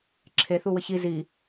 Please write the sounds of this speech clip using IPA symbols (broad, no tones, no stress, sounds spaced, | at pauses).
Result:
ǁʰ e θ u w ə ç i z i